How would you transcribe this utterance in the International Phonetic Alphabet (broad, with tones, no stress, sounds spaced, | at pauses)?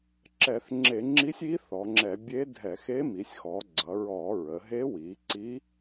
ǁ ɛ˧˩˧ θ ŋ͡ǁ e˧˩˧ ŋ͡ǁ i˧˥ sʲ i˧˥ θ ɔ˩˧ ŋ͡ǁ ɛ˧˩˧ bʲ e˧˥ dʱ ɛ˧˩˧ x e˧˥ m i˩˧ sʲ x ɔ˩˧ ɡ͡ǀ ʌ˩˧ ɹ ɔ˧˩˧ ɹ ə˩˧ ɦ e˧˥ w i˩˧ ǀ i˧˥